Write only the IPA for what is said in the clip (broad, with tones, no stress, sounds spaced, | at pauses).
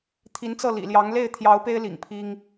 t̪ʰ i˧˥ n t͡s ɤ˥˩ l ḭ˨˩ l j ɑ˧˥ ŋ l e˥˩ ɪ̯ t̪ʰ j ɑ˧˥ ʊ̯ p e˥ ɪ̯ l ḭ˨˩ ŋ pʰ i˥ ŋ